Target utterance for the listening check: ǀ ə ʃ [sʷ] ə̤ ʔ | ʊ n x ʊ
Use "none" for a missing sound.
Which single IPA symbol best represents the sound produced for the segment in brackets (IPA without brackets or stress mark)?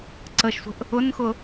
sʷ